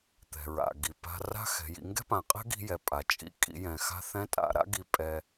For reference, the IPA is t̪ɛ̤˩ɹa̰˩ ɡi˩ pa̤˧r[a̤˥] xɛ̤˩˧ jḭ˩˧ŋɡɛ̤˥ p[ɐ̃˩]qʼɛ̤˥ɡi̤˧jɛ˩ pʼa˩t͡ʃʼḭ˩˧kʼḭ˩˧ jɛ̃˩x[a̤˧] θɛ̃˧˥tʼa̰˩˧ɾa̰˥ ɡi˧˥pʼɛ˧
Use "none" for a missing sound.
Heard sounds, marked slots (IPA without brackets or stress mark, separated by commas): a̤˥, ã˩, a̤˧